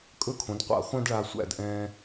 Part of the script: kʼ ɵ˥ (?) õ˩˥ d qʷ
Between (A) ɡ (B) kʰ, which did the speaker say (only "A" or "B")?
B